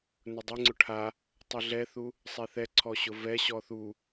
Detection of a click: present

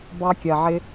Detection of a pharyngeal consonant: present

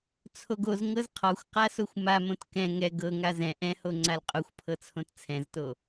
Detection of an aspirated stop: present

